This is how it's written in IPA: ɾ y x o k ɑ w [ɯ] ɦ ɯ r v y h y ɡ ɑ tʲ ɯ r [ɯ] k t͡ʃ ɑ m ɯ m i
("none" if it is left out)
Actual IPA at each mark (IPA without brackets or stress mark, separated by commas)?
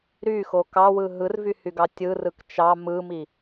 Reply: ɯ, ɯ